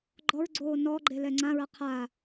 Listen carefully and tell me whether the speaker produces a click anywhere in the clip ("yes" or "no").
yes